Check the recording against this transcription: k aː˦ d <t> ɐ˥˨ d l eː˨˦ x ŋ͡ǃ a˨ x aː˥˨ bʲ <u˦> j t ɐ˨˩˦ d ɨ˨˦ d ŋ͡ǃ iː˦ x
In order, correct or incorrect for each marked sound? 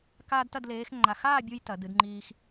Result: correct, correct

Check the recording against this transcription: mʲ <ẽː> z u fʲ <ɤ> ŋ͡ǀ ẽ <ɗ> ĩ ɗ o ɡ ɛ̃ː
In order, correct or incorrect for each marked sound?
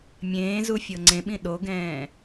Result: correct, correct, incorrect: ɓ

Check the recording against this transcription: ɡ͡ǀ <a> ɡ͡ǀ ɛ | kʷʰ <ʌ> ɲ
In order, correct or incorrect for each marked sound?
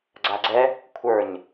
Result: correct, incorrect: ə˞

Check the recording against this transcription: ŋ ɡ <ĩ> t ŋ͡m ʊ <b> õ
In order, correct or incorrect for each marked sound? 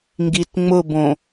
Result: incorrect: i, correct

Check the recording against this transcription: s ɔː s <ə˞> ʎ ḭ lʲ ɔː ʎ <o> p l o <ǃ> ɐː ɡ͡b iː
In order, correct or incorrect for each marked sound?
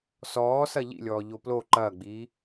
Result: incorrect: ɐ, correct, correct

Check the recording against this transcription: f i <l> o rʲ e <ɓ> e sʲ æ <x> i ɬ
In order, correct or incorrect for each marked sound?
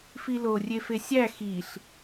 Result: correct, incorrect: f, correct

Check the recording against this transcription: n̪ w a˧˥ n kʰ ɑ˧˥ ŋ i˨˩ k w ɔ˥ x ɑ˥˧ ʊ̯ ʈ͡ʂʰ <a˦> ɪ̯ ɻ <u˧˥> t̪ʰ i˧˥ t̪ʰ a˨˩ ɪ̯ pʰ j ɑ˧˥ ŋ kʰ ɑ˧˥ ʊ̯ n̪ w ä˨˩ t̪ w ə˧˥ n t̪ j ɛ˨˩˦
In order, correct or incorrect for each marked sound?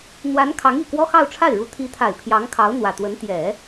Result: incorrect: a˥˩, correct

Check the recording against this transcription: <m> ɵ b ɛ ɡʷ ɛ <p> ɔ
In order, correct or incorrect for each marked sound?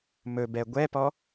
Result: correct, correct

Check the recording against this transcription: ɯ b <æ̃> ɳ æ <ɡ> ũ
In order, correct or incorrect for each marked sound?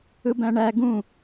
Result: correct, correct

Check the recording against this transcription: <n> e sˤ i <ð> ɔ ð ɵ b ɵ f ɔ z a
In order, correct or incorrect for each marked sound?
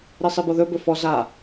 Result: incorrect: ɾ, incorrect: b

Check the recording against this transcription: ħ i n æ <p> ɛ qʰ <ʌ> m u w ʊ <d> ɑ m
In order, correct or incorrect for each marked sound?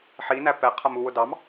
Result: correct, correct, correct

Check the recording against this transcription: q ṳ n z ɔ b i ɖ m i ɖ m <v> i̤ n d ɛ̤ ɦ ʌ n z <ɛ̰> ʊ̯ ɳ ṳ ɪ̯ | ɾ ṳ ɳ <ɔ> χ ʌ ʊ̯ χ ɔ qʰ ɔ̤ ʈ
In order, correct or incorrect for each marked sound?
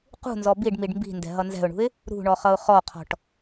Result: incorrect: b, incorrect: ɛ̤, correct

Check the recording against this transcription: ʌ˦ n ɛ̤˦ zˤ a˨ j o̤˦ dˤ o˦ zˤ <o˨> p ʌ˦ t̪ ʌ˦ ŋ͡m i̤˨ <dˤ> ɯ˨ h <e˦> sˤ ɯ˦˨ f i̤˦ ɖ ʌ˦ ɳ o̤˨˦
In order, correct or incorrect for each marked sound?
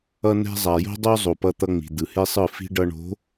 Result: correct, incorrect: d̪, correct

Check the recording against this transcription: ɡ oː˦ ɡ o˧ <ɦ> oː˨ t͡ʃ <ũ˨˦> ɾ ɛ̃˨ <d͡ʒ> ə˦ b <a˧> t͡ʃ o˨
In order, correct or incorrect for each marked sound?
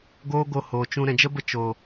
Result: incorrect: h, incorrect: ũ˧, correct, incorrect: ə˧

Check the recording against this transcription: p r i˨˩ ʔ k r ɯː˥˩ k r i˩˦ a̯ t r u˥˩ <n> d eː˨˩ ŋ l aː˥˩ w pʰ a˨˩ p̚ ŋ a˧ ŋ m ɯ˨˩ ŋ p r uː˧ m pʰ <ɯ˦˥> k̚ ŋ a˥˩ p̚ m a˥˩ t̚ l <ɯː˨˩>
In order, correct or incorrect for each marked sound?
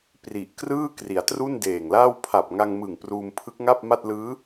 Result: correct, correct, incorrect: ɯː˦˥

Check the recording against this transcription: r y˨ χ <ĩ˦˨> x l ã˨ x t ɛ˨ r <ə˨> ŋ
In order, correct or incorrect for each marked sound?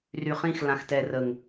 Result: correct, correct

